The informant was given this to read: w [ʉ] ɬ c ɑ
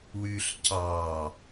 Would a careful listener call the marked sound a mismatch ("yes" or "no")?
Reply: no